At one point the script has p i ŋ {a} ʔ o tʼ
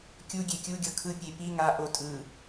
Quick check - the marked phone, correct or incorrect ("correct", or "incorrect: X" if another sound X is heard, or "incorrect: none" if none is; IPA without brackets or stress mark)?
correct